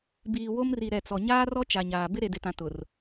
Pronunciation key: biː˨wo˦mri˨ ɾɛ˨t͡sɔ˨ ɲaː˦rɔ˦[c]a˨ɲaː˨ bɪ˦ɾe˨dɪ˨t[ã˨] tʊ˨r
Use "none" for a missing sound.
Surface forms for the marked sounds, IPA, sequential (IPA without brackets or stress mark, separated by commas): t͡ʃ, ã˨